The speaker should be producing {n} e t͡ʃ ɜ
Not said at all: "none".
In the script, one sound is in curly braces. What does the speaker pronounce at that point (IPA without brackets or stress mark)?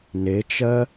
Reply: n